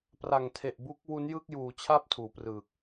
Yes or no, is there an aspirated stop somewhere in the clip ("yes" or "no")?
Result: yes